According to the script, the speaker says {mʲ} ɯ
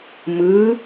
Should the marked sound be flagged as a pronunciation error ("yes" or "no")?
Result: yes